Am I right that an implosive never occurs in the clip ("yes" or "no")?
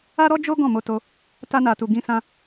yes